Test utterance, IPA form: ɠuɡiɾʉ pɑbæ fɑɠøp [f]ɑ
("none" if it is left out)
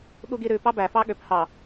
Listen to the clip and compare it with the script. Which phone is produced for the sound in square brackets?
h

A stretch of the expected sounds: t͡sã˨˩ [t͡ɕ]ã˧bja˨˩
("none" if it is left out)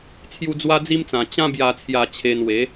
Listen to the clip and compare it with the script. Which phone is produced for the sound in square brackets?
t͡ɕ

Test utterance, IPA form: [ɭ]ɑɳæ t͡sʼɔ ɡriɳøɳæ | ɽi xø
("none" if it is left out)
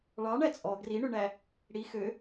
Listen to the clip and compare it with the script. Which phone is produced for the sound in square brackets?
ɭ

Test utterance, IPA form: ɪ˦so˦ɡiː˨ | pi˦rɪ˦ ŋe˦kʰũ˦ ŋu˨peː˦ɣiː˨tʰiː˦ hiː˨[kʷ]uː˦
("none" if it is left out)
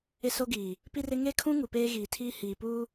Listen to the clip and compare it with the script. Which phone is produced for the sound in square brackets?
p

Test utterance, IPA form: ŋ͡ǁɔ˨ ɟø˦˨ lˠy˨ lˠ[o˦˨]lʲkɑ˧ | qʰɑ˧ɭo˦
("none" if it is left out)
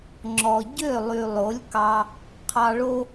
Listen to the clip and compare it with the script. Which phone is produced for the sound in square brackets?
o˨˦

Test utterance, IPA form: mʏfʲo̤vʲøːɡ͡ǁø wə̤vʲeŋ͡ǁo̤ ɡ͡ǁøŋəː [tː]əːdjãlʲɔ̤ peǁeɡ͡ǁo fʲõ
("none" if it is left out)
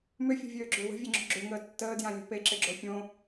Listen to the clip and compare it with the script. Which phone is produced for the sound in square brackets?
tː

